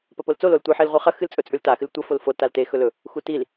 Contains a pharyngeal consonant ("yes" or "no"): yes